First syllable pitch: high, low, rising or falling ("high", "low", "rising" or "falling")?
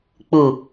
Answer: low